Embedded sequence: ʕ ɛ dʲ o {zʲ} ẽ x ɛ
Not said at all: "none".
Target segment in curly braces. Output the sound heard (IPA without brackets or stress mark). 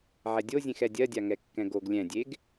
zʲ